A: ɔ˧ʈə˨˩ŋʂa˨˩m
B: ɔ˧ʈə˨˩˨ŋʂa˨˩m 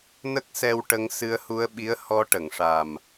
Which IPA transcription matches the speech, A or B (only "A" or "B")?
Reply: B